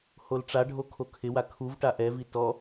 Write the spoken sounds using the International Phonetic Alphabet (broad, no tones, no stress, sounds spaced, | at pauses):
h o l ʈ͡ʂ a ɖʱ o kʰ o kʰ ɪ w a kʰ u v ʈ a ʔ ɛ v i t ɔ